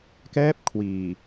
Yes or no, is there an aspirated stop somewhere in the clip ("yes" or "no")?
yes